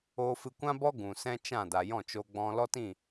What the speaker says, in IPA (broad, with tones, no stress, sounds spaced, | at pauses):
oː˧ f ɨ˧ kʷ ã˦ b ɔ˦ ɡ ũ˨ s ɛ̃˦ t͡ʃ ã˦˨ d a˨ j ɔ̃˦˨ t͡ʃ o˧ ɡ͡b ɔ̃˧ l ɔ˦ t ĩ˦˨